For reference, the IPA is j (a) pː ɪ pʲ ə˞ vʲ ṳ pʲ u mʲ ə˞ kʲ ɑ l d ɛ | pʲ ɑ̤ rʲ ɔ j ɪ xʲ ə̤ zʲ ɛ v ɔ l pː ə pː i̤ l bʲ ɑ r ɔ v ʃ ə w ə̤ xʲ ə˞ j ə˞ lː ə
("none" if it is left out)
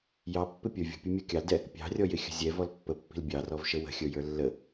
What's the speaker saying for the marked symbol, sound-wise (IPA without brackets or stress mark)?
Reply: ɑ